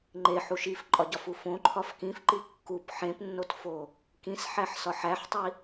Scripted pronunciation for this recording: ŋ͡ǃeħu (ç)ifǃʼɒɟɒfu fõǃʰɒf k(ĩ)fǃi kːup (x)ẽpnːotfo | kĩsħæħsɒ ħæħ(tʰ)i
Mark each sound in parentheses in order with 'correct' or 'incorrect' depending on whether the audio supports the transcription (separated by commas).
incorrect, correct, incorrect, incorrect